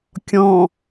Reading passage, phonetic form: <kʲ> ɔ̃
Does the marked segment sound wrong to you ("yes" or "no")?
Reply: no